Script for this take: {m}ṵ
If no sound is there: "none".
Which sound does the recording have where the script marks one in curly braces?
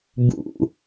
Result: b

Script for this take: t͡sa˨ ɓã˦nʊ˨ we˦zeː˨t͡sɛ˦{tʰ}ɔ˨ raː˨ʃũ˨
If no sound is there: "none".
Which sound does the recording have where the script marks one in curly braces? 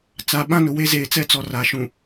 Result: t͡s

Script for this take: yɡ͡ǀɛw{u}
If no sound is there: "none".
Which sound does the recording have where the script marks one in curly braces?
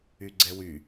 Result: y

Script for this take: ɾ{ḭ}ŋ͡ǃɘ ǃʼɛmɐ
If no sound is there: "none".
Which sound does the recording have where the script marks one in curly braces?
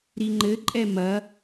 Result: i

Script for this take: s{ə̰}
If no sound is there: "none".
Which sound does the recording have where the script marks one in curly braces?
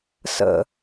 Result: ə̰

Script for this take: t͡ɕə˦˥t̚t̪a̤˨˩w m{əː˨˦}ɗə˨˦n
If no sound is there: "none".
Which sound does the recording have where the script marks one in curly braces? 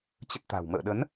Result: ə̰ː˧˨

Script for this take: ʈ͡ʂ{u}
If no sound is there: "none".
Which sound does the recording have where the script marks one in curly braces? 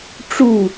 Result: u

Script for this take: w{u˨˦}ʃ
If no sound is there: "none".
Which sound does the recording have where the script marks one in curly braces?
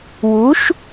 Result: u˨˦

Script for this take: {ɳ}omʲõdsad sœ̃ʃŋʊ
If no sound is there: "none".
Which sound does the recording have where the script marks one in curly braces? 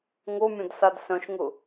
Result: ŋ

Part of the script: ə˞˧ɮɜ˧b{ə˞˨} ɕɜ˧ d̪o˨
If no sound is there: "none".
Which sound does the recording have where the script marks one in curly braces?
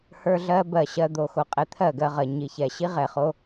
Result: ɜ˨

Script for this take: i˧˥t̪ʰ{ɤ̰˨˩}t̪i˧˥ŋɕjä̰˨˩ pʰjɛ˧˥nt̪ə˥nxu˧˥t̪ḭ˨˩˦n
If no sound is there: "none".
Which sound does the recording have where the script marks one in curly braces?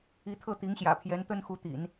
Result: ɤ˥˩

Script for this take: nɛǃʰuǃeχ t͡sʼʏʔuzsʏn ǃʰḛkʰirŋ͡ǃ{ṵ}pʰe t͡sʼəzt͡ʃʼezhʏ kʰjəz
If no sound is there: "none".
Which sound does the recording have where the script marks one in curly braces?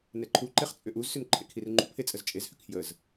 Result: ṵ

